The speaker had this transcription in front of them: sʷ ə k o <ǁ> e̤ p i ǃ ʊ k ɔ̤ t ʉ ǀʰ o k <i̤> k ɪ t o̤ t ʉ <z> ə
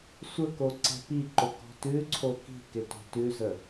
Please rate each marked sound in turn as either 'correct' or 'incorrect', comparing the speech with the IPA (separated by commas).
incorrect, correct, correct